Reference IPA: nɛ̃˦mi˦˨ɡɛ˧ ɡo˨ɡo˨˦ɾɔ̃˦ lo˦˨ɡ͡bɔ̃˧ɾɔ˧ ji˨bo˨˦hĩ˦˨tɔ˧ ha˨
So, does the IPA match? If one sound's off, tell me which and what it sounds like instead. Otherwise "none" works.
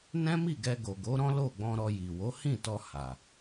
b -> w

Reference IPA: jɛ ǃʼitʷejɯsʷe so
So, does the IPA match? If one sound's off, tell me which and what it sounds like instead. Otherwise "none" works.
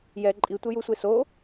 ɯ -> u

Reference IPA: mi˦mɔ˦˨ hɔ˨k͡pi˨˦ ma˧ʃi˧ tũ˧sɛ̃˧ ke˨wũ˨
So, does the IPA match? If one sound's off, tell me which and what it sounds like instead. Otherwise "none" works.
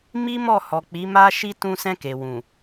none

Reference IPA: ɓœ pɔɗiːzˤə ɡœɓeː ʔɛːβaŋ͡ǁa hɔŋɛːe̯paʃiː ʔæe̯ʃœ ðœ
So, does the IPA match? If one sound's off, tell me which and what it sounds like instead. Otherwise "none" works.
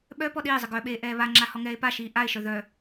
æ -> a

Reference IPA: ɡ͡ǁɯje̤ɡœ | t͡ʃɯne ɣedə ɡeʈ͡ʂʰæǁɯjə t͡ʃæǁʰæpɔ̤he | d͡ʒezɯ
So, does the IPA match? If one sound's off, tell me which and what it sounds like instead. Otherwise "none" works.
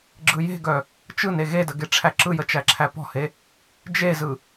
none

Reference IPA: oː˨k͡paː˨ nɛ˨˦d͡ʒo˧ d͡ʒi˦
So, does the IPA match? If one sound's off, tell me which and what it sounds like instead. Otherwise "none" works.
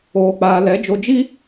n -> l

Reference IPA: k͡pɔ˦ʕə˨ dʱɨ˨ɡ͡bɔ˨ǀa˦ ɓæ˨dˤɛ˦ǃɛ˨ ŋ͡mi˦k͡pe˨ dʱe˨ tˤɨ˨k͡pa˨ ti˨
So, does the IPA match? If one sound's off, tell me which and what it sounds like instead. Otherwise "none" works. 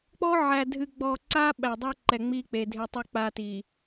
ə˨ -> æ˨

